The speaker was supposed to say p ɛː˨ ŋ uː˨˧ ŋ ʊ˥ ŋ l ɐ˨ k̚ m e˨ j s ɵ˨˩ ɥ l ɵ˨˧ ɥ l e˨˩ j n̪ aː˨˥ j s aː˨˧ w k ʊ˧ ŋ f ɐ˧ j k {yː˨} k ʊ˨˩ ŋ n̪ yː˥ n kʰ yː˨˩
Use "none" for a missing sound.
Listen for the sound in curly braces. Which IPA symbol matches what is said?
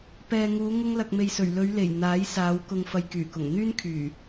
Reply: yː˨˩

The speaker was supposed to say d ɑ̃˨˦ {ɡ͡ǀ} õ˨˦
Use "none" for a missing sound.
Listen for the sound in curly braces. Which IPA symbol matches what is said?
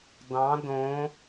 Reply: d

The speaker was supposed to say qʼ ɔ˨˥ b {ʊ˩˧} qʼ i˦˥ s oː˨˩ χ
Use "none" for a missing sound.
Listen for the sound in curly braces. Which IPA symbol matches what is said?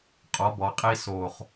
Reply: ɔ˩˧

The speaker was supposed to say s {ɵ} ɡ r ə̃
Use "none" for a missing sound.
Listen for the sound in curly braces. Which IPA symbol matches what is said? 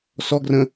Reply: ɔ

